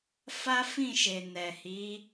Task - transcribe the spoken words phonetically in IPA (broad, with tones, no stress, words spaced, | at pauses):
fa˦fĩ˦˨ʃe˨ nɛ˨hi˨˦